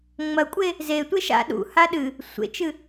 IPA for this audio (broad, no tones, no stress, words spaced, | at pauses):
ŋ͡mɐkʷʼe | zetʷe ʃa̰ ɗṵ haɗɨ | sʷḛt͡ʃɨ